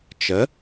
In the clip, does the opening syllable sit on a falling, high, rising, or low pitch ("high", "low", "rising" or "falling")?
rising